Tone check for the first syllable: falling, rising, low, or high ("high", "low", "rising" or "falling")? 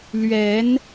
rising